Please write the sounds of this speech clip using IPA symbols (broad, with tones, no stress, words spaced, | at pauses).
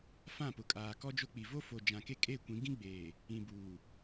fã˦˨pʊ˨kʼaː˨ kɔ˦d͡ʒo˦k͡pi˨ vo˦fo˨ d͡ʒã˨ke˦ kʼe˦˨kʷĩ˨˦ ɡĩ˦ɡ͡beː˨ | ĩ˨buː˨